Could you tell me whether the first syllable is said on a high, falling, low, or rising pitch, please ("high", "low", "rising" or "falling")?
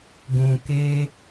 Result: low